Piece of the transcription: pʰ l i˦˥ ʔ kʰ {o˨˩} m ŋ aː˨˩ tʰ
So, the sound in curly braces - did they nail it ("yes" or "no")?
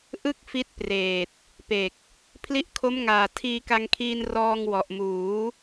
no